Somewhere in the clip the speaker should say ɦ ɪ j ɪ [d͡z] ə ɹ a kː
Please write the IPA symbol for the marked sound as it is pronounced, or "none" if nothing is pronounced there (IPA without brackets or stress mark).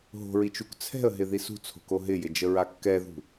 d͡ʒ